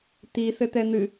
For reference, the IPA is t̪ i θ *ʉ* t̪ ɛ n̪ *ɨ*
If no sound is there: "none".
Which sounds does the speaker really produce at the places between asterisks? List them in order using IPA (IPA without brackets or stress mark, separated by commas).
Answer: ɘ, ɨ